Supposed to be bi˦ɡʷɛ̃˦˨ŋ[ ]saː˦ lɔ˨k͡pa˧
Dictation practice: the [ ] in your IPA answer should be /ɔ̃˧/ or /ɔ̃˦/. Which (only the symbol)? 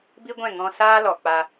ɔ̃˧